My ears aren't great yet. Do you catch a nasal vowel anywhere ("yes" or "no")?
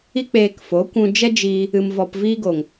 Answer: yes